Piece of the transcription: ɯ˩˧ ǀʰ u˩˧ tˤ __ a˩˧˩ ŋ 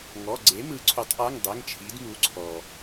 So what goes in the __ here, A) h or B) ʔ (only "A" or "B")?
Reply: B